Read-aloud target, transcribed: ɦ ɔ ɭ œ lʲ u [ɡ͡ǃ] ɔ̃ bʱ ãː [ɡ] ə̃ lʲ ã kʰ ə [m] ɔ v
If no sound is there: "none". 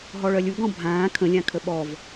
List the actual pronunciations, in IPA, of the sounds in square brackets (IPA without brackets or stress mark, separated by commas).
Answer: ɡ, kʰ, ɓ